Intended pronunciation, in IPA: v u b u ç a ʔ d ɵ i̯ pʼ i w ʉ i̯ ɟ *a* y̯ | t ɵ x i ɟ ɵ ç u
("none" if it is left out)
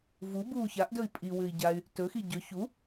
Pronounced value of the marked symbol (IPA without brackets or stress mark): a